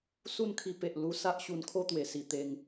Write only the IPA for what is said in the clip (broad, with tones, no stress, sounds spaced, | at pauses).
s u˥˧ n kʰ i˧ p e˨ ʔ l u˧ s a˦ ʔ ɕ u˧ n kʰ o˦ t̪ w e˨˩ s i˨˩ t̪ e˧ ŋ